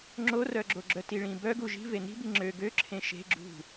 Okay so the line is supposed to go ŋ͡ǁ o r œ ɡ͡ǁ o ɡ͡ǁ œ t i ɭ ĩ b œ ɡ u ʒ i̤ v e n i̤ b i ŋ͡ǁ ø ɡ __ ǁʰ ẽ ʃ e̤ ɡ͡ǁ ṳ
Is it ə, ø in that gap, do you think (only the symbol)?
ø